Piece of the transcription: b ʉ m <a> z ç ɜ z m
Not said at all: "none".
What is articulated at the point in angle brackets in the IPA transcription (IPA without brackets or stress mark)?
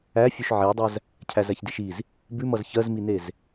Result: ʌ